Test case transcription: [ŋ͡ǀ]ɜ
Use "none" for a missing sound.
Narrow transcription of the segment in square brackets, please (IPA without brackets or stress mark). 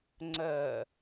ŋ͡ǀ